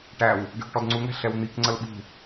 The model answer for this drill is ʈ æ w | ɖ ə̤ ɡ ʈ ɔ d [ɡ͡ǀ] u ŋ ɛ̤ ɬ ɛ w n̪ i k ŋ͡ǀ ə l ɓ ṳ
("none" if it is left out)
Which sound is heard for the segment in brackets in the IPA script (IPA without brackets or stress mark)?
ŋ͡ǀ